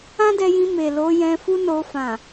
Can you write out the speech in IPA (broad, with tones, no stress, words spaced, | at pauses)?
ã˦dɛ˧jĩ˧ me˨lo˨˦ jɛ̃˧ fu˦no˧ fã˨